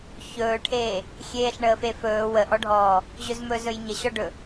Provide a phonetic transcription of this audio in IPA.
ç ɵː ʈʰ eː | xʲ eː ɬ ɳ əː f e f ɵː w ə ʔ ɔ ɖʱ ɔː | ʑ ɵ z m ɵ z ɵ j ɲ ə ɕ ɔ ɖ ɵ

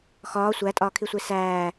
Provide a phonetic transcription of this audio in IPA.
x ɒː sʷ æ tʼ ɒː kʰ i sʷ e s æː

